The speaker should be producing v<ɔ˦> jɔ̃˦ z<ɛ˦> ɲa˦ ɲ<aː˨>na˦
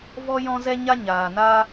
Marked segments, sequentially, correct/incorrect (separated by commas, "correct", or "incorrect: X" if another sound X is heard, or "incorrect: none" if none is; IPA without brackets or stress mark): correct, correct, correct